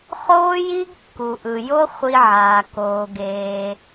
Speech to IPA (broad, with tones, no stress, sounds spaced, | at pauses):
χ oː˦ j i˦ ɡ kː u˨ ʔ ɯ˨ j o˦ χʷ i˧ ʕ aː˨ k oː˧ ɡ eː˧